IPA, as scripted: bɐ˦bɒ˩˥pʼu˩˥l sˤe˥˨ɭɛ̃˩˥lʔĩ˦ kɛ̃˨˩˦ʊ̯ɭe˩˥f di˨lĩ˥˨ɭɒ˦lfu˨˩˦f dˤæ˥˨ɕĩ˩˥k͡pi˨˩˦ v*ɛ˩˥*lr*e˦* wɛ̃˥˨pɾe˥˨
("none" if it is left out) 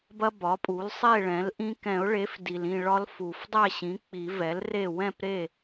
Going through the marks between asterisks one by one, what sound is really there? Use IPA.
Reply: ɛ˩˥, e˥˨

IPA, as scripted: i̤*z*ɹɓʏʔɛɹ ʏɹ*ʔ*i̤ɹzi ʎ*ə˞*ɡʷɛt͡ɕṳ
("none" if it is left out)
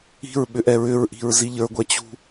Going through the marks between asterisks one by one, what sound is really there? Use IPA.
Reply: none, ʔ, ə˞

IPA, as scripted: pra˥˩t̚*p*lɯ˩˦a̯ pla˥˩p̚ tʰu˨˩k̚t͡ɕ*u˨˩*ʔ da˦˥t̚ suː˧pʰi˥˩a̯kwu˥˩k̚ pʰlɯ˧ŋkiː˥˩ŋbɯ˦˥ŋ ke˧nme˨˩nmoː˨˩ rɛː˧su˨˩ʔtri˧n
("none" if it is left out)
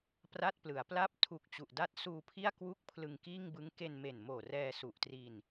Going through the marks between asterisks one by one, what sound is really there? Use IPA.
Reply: p, u˨˩

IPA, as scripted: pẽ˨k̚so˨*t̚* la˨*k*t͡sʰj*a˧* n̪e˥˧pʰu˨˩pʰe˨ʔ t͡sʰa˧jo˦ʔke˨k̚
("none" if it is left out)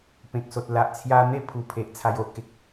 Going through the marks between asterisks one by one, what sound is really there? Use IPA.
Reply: t̚, ʔ, a˧

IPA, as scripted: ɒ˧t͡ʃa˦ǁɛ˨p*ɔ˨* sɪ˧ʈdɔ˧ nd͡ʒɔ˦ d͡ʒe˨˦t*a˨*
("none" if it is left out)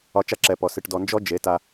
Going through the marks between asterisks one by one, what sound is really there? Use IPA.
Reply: ɔ˨, a˧

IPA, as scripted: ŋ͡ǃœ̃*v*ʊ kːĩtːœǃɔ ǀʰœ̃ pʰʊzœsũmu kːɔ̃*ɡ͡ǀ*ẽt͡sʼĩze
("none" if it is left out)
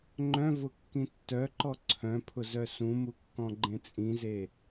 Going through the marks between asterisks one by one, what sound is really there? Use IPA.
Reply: v, ɡ͡ǃ

